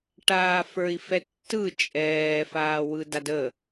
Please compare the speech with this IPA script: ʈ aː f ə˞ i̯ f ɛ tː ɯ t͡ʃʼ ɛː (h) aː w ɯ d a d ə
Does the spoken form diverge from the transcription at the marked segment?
yes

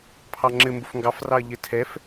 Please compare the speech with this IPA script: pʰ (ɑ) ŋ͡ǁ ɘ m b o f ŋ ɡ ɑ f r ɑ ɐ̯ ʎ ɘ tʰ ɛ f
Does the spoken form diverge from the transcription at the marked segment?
no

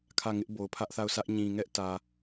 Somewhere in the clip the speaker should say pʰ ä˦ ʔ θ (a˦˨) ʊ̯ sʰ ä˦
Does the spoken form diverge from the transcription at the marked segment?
no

